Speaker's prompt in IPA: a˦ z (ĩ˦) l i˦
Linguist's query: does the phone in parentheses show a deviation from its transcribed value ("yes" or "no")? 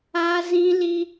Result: no